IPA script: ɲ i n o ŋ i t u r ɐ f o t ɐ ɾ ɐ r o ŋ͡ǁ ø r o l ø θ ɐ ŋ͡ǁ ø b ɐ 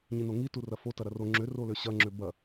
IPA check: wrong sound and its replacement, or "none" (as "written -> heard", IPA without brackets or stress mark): θ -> ɕ